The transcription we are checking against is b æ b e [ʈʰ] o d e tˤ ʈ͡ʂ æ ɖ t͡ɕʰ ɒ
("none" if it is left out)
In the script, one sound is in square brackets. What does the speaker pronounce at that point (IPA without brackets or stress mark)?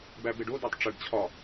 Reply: ɖ